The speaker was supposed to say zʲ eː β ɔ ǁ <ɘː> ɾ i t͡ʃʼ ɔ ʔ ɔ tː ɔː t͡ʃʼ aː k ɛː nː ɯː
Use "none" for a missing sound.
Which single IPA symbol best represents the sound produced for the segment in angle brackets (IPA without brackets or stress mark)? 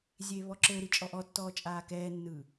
ɘː